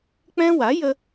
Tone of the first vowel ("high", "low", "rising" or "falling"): high